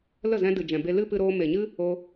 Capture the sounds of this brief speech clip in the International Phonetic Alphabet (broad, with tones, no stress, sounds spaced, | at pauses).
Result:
l ə˦˨ z ɛ̃˧ d ɨ˨ d͡ʒ ɛ̃˨ b e˧ l ɨ˦ p ɨ˧ ɾ oː˧ m e˨ ɲ ɨ˦ | o˧